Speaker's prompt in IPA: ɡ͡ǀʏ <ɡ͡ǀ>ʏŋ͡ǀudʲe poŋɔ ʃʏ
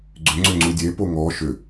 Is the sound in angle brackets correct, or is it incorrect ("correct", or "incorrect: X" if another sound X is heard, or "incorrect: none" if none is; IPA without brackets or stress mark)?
incorrect: ŋ͡ǀ